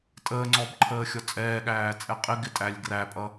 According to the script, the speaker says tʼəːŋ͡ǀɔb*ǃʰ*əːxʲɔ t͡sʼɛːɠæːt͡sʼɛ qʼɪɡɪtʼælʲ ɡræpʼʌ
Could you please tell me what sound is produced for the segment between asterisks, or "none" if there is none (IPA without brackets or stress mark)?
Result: ǃʰ